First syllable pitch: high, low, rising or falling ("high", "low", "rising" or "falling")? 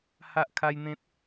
high